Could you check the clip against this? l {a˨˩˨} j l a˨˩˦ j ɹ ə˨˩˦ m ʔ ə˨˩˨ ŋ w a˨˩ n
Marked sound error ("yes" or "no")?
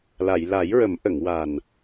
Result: no